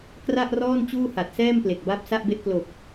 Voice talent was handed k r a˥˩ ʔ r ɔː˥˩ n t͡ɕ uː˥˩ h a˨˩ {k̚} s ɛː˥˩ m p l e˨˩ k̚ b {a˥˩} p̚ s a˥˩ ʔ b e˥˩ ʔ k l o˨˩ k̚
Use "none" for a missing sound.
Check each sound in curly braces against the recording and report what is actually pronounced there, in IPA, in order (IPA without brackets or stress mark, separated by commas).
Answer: t̚, a˥˩